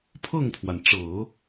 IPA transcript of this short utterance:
pʰ ɤ˥˩ ŋ pʰ w a˩ n ʈ͡ʂ ɤ˨˩˦

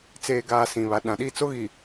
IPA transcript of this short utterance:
t͡s eː˨ ɡ aː˨ s ĩ˨ β a˨ ɗ ã˨ ɗ i˦˨ t͡s o˦ ɣ i˨

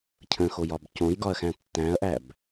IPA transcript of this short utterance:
cʰ ə̃ x o j ɒ b c õ j ɡ ɒ ɐ̯ x æ̃ tː æ̃ ɐ̯ ʔ æ b

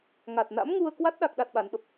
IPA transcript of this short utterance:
ŋ a˨˩ t̚ n a̰˧˥ m ŋ u˧ ə̯ k w a˦˥ t̚ ɗ a˦˥ k̚ ɗ a˦˥ t̚ ɓ a˨˦ n ɓ ə˦˥ p̚

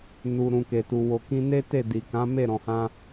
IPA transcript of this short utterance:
n u˨ ɾ ũ˨ k e˨ t u˨ w o˨ k ĩ˧ n e˦ t e˦˨ d i˨ k ã˨˦ m e˦˨ ɾ ɔ̃˨ h ã˧

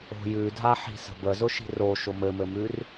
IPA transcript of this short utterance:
o̤ j ʉ dʱ a ħ i̤ s ə̤ b ə z ʊ ʃ i̤ r o ʃ ʊ m ɘ m ɘ m ʉ r

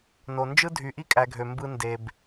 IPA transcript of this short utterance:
n o˨ n d͡ʒ ɯ˥ dʱ y˨ ʔ i˥ kʼ æ˨ ɡʱ ø˩ m b ɯ˦ n d e˩ b

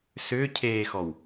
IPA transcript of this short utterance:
s ʏː cʰ eː x ɔ w

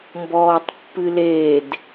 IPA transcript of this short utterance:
m b ɔː tˤ pː ɨ l e d

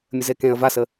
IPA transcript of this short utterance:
mʲ ə z e k ẽ ə̯ v a s ə

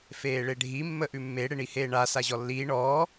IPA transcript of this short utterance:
f eː ɭ e ɖʱ i mː ə ʔ ʉ mː e ɽ e ɳ i h eː ɳ a s a ʑ ɔ lː iː ɳ ɔː

